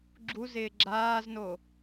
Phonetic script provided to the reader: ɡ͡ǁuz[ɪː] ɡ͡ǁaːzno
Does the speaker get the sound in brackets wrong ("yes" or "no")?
no